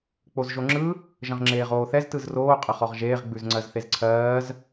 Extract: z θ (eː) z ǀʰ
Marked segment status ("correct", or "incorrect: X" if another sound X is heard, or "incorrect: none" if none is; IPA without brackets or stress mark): incorrect: e